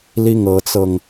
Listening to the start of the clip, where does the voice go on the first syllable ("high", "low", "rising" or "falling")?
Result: falling